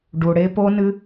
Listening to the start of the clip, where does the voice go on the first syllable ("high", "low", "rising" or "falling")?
low